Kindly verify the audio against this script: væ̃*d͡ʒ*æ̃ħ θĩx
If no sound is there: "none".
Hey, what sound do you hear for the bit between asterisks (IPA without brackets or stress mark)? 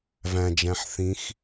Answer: d͡ʒ